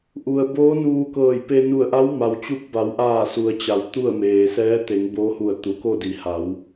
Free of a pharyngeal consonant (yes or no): yes